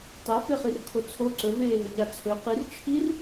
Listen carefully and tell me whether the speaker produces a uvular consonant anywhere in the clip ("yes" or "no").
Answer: yes